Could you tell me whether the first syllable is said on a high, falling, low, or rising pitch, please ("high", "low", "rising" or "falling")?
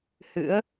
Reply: rising